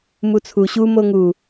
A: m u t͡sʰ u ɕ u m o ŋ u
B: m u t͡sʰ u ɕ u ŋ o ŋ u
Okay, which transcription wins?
A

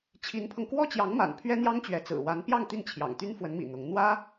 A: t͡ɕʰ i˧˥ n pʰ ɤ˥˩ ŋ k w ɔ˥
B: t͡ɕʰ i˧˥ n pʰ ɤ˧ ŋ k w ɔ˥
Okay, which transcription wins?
B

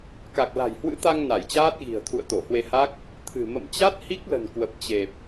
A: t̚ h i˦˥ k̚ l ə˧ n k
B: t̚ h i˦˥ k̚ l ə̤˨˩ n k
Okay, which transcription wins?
B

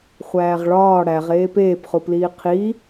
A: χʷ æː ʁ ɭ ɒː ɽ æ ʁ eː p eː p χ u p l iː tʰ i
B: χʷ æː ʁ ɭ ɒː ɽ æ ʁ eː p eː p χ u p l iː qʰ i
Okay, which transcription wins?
B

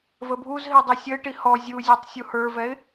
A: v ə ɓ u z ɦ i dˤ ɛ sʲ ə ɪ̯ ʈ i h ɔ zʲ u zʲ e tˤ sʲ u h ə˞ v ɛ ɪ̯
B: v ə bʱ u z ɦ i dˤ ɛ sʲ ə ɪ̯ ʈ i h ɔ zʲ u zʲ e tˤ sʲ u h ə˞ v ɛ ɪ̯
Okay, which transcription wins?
B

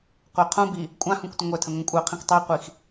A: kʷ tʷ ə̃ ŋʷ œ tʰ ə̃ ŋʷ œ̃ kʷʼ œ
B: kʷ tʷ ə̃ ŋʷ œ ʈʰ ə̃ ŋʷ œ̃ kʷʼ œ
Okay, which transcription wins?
A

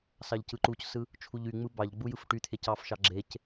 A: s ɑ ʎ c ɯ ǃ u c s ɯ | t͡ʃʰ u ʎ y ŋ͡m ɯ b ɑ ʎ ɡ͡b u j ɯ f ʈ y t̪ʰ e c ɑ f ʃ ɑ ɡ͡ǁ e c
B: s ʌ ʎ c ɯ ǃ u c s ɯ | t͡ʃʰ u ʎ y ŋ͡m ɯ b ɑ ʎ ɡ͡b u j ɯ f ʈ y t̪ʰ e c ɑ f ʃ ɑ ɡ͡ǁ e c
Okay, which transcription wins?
A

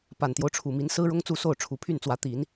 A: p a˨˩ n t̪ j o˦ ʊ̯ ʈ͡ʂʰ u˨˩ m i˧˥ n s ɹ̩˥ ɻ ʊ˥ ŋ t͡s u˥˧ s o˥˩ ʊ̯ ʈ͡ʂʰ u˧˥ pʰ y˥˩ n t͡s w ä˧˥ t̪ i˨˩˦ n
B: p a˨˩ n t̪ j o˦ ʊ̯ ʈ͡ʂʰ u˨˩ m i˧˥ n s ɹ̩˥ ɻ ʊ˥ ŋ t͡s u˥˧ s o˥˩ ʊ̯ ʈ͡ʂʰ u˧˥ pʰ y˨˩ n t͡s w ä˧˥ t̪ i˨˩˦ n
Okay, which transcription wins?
A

